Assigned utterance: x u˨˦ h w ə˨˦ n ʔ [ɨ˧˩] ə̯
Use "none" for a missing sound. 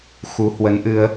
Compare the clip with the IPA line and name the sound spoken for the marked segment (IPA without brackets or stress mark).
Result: ɨ˧